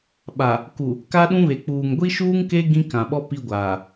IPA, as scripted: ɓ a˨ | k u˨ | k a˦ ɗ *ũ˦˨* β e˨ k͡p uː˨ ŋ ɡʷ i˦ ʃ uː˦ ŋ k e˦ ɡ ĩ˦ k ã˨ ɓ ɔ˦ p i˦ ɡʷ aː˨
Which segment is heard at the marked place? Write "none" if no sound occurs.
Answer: ũ˦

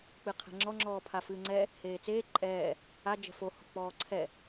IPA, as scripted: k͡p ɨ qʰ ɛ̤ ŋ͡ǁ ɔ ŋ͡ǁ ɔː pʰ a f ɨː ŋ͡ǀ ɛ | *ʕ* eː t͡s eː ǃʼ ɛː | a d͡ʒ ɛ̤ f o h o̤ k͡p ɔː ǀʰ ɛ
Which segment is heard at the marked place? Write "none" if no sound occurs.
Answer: h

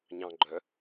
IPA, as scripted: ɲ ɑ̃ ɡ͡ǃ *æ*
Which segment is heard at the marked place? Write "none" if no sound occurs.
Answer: œ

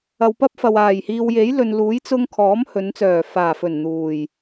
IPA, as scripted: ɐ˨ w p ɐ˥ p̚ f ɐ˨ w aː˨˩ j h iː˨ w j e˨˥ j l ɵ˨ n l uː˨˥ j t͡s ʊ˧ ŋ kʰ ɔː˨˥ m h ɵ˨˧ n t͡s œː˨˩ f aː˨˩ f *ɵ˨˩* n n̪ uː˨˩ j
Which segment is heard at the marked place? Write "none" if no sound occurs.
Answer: ɵ˨˩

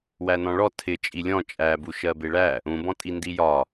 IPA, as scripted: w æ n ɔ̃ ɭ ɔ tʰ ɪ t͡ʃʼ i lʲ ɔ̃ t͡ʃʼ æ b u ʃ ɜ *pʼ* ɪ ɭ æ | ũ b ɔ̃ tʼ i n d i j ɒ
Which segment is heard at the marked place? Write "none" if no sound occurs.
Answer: b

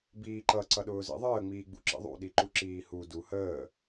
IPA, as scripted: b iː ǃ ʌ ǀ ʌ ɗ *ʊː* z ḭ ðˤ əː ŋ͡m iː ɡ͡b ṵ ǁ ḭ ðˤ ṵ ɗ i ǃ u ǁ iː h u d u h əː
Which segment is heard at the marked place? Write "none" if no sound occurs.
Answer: ʊː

